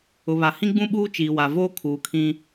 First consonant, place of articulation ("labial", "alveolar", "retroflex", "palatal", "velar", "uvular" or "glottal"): labial